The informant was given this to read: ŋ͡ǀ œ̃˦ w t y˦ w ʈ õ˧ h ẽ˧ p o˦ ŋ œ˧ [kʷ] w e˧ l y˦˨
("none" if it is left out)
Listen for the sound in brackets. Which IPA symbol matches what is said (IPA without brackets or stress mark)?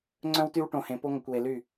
kʷ